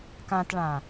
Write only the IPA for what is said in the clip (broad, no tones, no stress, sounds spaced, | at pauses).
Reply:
k ã t ɭ ã